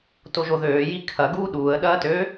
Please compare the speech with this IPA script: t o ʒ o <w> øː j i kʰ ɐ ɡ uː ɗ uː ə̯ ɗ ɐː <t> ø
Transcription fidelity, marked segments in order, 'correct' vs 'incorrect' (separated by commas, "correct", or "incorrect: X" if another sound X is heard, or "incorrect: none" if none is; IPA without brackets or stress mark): incorrect: ð, correct